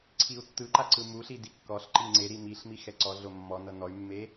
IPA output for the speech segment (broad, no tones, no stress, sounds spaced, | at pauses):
ǀʰ i u̯ tː ɯ ǃ a ǀ ɯ m u ɬ i d i kː ɔ ɬ ǃ i ŋ͡ǀ e ɾ i m i ɬ m i x ɛ ǀ ɔ ɮ o mː ɔ n ɤ n ɔ y̯ mː e